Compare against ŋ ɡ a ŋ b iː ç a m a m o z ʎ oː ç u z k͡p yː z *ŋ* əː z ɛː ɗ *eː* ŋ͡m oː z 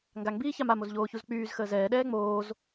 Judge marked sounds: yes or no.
no, no

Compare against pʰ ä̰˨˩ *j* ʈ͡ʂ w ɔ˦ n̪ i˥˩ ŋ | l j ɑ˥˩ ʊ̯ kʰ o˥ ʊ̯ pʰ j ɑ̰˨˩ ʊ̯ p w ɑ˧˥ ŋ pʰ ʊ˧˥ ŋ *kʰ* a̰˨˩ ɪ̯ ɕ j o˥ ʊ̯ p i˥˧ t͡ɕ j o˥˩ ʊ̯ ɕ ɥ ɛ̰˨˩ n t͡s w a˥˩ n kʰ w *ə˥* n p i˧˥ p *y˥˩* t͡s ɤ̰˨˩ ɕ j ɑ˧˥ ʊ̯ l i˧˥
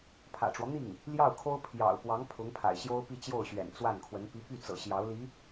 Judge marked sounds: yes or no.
no, no, no, yes

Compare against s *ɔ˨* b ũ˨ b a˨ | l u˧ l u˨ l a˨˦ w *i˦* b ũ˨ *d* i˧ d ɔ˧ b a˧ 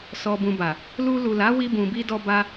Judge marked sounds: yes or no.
yes, no, no

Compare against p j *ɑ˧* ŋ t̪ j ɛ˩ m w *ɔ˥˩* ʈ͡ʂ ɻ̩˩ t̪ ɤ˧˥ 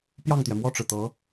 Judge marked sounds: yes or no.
no, yes

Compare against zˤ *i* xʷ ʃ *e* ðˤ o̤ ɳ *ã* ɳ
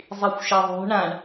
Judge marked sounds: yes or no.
yes, yes, yes

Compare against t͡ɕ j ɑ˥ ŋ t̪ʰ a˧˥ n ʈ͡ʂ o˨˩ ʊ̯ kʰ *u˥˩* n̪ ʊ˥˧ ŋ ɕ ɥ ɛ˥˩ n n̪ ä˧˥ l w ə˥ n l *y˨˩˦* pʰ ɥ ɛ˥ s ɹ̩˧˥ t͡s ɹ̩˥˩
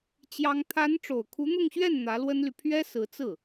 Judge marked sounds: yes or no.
no, no

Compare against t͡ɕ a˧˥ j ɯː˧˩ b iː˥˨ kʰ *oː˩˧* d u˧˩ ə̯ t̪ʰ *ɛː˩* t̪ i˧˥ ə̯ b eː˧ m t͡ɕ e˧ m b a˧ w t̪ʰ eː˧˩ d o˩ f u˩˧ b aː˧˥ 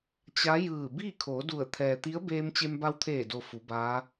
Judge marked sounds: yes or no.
yes, yes

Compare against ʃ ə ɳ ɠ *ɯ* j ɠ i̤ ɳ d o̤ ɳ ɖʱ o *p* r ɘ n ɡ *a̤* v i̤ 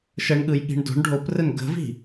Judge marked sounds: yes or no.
yes, yes, no

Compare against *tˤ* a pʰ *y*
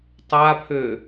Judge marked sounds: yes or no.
yes, no

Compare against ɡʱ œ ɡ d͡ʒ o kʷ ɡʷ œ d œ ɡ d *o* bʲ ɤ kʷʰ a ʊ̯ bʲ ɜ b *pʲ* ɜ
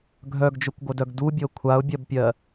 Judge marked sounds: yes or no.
no, yes

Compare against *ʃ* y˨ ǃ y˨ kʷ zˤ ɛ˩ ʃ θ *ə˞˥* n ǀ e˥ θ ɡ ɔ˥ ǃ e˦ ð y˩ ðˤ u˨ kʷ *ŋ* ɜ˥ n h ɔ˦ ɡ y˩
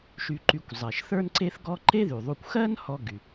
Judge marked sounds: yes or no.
yes, yes, no

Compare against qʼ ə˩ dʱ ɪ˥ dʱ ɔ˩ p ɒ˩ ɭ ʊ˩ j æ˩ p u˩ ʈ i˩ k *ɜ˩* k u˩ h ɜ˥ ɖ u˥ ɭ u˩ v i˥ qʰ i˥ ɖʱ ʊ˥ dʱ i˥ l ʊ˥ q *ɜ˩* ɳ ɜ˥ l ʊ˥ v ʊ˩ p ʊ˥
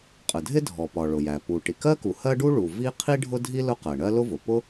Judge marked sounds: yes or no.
no, yes

